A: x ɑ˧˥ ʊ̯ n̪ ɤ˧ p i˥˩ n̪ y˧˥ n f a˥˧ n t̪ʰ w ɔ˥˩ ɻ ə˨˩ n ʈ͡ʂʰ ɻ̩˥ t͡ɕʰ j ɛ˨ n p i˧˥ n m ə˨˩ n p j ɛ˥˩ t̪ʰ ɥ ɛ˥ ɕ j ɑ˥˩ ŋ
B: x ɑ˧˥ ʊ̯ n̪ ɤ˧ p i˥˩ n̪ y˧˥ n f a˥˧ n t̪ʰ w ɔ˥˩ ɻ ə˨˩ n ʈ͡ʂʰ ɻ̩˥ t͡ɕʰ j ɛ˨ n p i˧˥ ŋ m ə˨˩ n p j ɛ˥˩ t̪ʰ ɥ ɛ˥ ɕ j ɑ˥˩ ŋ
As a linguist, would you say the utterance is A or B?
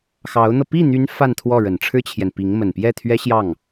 B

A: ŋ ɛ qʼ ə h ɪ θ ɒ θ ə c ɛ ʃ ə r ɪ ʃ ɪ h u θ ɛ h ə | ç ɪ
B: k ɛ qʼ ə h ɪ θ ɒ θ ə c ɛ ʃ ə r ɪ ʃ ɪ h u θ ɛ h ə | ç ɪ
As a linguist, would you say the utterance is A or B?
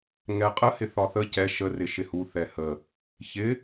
A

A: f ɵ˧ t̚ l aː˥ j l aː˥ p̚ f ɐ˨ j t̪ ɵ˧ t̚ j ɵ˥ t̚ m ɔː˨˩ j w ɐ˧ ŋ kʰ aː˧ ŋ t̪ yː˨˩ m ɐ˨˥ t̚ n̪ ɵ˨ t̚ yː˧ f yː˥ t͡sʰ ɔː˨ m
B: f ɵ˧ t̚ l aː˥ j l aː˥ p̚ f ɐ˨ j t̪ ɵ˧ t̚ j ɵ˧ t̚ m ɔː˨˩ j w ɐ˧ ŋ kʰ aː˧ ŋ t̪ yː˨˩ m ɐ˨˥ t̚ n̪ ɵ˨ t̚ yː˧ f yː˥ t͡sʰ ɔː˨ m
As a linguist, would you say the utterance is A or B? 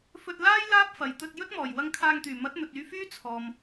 A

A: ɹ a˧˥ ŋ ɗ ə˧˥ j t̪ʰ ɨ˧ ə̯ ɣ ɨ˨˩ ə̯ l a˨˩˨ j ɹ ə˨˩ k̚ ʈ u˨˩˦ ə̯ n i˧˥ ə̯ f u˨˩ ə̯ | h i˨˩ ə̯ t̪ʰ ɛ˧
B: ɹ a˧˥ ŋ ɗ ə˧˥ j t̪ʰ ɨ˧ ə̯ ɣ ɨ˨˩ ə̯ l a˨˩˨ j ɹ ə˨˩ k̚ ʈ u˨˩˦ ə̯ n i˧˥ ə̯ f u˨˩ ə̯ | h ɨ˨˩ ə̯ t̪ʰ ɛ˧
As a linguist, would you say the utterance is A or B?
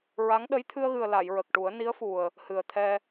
B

